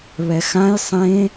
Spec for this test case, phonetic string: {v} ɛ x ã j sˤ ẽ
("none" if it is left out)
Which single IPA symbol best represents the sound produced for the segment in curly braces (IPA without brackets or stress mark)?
β